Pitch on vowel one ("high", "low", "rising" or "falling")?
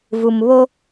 low